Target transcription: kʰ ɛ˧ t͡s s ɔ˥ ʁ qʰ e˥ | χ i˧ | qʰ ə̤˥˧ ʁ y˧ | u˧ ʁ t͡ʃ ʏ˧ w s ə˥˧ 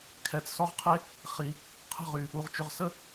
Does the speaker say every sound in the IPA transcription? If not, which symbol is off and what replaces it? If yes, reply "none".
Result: w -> ʁ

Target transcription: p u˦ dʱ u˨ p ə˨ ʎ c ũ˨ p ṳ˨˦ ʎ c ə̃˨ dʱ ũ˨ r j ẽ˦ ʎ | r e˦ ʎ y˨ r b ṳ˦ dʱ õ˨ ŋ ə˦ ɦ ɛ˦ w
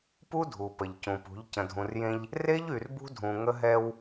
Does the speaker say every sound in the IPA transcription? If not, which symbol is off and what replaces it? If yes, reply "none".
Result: õ˨ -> ũ˨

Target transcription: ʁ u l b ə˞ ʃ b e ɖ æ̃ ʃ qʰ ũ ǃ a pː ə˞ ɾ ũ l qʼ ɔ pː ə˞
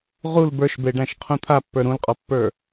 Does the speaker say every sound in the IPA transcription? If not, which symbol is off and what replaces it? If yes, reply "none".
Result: ǃ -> t̪ʰ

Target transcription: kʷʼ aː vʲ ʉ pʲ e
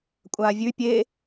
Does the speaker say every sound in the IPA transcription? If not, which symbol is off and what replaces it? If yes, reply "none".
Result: none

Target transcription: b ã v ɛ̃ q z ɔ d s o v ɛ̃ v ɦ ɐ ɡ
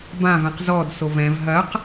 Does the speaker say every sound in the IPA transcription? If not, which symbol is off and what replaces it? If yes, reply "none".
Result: ɡ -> q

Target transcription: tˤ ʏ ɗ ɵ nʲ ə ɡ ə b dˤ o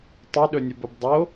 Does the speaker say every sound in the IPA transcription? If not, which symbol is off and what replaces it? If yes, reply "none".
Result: ɡ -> b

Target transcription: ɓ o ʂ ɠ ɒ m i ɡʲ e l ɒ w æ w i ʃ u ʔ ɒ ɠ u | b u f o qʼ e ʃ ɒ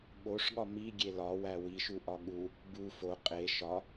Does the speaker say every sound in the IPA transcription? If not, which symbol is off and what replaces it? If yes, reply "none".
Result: none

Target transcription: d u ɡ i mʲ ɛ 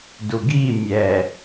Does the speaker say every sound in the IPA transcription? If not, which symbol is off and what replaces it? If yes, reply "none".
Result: none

